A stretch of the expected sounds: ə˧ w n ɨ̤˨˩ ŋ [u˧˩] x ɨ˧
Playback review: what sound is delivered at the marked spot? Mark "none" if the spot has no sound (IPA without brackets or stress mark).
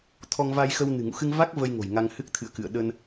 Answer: ṵ˧˨